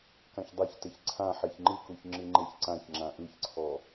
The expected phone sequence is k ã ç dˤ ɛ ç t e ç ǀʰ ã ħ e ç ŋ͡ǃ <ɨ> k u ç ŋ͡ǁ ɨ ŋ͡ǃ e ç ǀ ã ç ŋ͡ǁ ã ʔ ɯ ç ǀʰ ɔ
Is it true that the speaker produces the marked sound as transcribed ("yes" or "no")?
yes